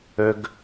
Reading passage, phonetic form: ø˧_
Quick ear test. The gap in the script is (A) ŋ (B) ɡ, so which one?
B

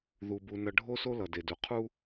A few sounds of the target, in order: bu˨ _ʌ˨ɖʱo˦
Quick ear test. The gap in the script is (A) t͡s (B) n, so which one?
B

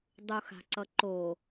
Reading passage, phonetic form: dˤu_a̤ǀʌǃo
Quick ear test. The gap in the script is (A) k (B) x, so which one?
B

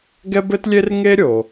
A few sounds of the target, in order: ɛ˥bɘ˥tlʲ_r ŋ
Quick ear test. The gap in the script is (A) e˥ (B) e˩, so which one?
A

